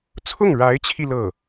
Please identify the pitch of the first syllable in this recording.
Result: falling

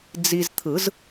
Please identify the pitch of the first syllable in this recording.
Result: low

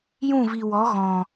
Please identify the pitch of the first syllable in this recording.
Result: falling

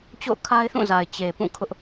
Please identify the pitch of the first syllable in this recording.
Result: falling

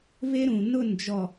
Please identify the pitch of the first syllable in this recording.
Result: high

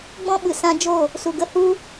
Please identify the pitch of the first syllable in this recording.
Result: high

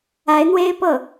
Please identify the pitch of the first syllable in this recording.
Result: rising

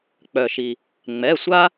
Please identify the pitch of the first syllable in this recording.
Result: low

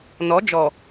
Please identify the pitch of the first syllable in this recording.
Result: rising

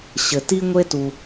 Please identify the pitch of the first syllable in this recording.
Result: low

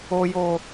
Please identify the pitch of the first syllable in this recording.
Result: low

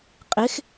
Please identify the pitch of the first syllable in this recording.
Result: rising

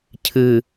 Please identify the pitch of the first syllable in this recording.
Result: low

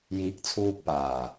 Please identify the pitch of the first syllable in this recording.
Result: rising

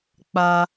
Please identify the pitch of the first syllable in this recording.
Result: high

